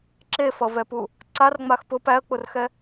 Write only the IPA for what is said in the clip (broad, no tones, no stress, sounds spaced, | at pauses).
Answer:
ǁ e f ʌ v ɛ p u | ǀ a r ŋ͡m a x p ʊ p æ ə̯ k͡p ʊ r x ɛ